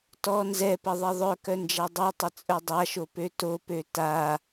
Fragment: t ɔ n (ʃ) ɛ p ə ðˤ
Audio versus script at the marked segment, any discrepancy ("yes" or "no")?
yes